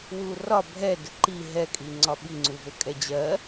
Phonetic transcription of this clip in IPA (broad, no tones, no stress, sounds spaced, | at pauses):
w u r ɒ bʱ ɛ d ə ǃ i ɦ ɛ kʼ i ŋ͡ǀ ɒ ɓ i ŋ͡ǀ u v ɘ kʼ ɛ d͡ʑ ɜ